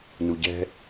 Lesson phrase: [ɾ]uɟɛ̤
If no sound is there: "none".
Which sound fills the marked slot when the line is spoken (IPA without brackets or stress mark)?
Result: n